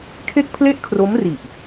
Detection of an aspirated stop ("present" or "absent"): present